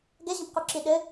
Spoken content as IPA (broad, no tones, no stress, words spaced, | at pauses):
ɡɛʑə̃pquǁi ɗɘ